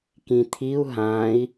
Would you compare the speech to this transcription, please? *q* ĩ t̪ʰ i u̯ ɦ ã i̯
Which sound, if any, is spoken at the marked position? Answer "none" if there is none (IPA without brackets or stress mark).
k